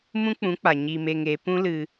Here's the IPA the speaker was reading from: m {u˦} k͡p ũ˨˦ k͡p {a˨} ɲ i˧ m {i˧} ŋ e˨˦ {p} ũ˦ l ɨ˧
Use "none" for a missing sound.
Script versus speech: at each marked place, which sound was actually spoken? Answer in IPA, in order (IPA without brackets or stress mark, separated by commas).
ũ˦, a˨, e˧, p